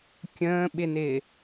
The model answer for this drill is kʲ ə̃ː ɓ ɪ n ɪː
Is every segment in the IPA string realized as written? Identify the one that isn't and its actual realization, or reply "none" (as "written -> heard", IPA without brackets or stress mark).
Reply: none